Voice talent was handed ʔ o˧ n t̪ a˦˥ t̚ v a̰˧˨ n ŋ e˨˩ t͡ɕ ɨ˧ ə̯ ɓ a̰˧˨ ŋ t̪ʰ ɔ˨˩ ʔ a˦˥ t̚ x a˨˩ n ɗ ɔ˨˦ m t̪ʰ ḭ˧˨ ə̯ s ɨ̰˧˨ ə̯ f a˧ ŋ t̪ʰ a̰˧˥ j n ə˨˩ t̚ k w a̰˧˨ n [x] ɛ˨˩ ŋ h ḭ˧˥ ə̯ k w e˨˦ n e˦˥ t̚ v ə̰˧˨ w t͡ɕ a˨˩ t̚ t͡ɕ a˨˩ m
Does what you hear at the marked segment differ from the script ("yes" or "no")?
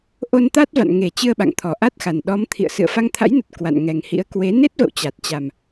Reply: yes